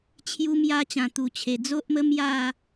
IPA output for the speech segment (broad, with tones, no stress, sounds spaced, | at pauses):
t͡ɕʰ j u˧ m j a˧ t͡ɕ ã˨˩ t̪ u˨˩ t͡ɕʰ e˨˩ d͡z o˦ ʔ m ə˦ m j a˥˧